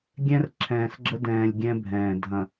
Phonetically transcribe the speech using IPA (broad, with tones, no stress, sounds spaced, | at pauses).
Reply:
ɡʲ ɛ̃˦ r ǁʰ ɛ̃ː˨ s ɡ͡ǁ ə˦ d ɛ̃ː˨ lʲ ɡʲ ɛ̃˦ bʱ ɛ̃ː˨ dʱ ɐ̃˨